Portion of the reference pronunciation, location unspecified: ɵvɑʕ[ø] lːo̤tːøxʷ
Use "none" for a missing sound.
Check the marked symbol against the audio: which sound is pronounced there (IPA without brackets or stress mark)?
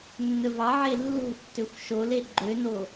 e